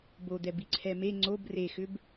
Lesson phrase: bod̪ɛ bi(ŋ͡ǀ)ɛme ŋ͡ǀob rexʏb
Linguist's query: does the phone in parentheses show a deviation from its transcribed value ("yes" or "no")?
yes